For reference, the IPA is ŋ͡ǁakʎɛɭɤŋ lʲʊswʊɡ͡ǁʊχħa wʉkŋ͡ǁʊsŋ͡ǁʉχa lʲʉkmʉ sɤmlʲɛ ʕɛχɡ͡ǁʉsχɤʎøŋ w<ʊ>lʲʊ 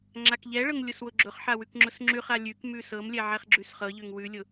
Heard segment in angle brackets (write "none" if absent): ʉ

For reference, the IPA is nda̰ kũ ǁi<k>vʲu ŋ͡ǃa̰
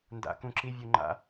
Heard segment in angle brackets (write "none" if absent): none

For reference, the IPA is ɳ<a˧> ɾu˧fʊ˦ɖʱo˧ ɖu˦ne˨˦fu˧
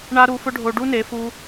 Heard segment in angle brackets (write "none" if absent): a˧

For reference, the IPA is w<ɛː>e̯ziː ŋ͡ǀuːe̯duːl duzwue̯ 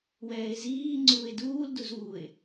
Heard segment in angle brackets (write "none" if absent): ɛː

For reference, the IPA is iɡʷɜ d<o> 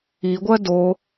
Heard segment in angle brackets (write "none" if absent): o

